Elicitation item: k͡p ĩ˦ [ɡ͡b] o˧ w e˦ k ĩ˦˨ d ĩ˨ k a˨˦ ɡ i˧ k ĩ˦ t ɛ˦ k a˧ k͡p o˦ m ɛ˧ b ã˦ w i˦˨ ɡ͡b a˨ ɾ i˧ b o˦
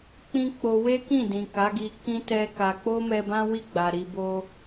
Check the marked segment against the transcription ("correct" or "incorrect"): incorrect